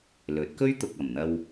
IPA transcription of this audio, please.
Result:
l ɵ˨˥ t̚ k ɵ˥ ɥ t̪ ʊ˨ k̚ ɐ˨˩ m n̪ ɐ˧ w

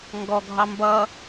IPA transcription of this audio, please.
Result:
ŋ ɡ ɔ ɡʱ ɑ m b ʌ

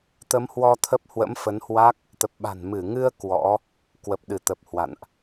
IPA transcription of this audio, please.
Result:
t̪ ə˨˦ m h w ɔ˧ t̪ʰ ə˦˥ p̚ h w ə̰˧˥ m f ə˨˦ n h w a˦˥ k̚ | t̪ ə˨˩ p̚ ɓ a̤˨˩ n m ɨ˧˩ ŋ ɨ˧ ə̯ k w ɔ̰˧˥ | k w ə˨˩ p̚ ɗ ɨ˧˩ t̪ ə˨˩ p̚ h w a̰˧˨ n ʔ

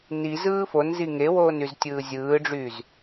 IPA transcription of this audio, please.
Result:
n i z ɯː f o n z i ŋ e w oː n y z tʲ ɯː zʲ ɯː ɖ͡ʐ yː z

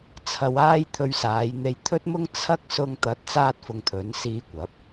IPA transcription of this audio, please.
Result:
t͡sʰ ɐ˧ w aː˥ j t̪ʰ ɵ˧ ɥ s aː˨˧ j n̪ e˧ j t̪ʰ ɵ˥ t̚ m ʊ˥ ŋ t͡sʰ ɐ˥ k̚ s ʊ˧ ŋ t̪ ɐ˨˥ t̚ t͡s aː˥ t̚ f ʊ˧ ŋ t̪ʰ ɵ˨˥ n s iː˧ kʷ ɐ˨˥ p̚

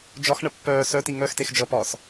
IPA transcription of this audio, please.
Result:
d͡ʒ ɒ x ɳ ə pː œː s œ t i ŋ œ x t e x d͡ʒ ʌ p ɒː s

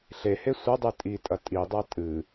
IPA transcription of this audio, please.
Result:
ɬ e h e sʷ ɐ dˤ ɨ tʼ i tʼ ɐ tʼ i dˤ a tʼ ɨ

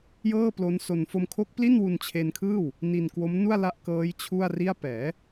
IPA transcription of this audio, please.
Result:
j ɤː˥˩ p l o˦˥ n s o˧ n f o˧ m kʰ o˦˥ k̚ p l i˥˩ n w u˧ n t͡ɕʰ e˧ n kʰ ɯː˥˩ w | n i˧ n k w o˦˥ m n u˥˩ a̯ l a˦˥ ʔ k ɤː˦˥ j t͡ɕʰ u˥˩ a̯ r i˥˩ a̯ p ɛː˩˦

